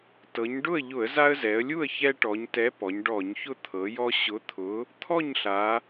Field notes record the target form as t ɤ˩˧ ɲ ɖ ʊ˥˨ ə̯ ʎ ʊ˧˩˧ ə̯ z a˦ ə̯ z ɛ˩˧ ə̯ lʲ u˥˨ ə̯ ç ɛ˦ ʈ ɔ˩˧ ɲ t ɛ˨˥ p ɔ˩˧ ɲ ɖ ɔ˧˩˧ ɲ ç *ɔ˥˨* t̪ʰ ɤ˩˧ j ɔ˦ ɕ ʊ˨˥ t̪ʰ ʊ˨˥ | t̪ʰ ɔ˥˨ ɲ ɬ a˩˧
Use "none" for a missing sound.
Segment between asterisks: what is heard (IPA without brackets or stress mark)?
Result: ʊ˥˨